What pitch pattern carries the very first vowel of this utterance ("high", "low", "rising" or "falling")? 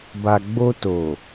low